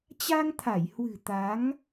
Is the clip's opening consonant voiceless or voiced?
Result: voiceless